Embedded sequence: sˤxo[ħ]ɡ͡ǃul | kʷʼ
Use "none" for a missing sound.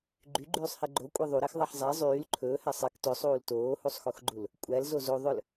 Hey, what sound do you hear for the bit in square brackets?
x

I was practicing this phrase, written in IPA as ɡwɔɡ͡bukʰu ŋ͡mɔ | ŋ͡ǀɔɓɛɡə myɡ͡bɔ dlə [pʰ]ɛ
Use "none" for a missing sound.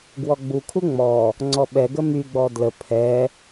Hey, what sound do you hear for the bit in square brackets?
pʰ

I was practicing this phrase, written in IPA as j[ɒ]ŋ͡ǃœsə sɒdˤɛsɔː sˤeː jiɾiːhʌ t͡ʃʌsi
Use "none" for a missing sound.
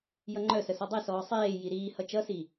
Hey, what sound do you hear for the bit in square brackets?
ʌ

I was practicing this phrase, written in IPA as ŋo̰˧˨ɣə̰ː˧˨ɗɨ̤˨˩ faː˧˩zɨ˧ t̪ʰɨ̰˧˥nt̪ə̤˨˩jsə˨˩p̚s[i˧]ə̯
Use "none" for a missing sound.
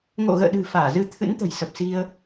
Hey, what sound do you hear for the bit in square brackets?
i˧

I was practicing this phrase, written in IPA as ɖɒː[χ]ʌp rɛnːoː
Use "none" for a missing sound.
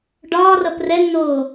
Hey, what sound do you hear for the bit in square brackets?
r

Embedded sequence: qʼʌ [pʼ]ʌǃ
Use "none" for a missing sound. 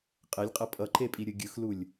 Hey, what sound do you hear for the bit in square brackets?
pʼ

